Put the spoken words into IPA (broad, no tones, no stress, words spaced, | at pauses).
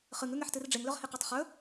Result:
χɨŋʉŋeħtɨr ɖ͡ʐeŋlɵʁheqatˤ χɵ